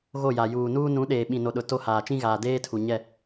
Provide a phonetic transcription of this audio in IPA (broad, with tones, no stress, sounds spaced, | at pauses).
ɣ o˦˨ j a˨ j uː˨ n uː˦ n ũ˨˦ ɗ eː˨ ɓ ĩ˨ n o˨ ɗ ʊ˨ t o˦ h aː˨ t͡ʃ ĩ˦ ɣ aː˨ d eː˦ tʰ u˨ ɲ ɛ˦˨